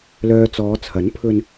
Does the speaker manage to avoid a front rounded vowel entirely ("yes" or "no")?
no